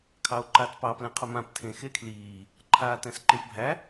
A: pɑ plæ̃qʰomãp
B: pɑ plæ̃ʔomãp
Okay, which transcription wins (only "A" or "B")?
A